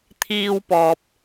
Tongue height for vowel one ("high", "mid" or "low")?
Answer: high